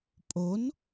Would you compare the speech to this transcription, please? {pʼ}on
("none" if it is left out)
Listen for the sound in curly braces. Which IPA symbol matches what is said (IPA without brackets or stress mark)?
pʼ